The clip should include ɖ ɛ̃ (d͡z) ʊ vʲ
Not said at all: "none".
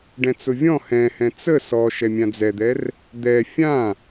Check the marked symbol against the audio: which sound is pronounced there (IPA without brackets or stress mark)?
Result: t͡s